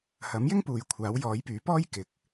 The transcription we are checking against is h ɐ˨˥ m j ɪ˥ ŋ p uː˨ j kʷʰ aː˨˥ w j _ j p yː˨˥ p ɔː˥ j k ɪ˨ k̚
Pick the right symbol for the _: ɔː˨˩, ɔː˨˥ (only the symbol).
ɔː˨˥